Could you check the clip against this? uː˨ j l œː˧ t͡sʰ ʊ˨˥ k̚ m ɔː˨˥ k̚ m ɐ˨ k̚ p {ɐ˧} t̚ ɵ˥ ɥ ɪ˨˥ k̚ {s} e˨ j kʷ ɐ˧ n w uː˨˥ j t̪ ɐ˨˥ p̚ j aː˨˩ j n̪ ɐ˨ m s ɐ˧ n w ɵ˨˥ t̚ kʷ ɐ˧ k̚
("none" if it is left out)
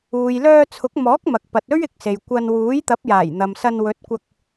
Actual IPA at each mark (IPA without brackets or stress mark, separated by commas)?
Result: ɐ˨, s